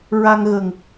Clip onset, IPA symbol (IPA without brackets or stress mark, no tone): ɹ